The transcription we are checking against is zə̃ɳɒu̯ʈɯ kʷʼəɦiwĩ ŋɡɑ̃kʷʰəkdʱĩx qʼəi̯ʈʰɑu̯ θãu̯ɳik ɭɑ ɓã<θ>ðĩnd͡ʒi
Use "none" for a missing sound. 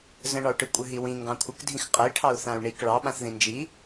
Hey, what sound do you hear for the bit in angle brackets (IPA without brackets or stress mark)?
θ